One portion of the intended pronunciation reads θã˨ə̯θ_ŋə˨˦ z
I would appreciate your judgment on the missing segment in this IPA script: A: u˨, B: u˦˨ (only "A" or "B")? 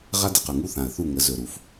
B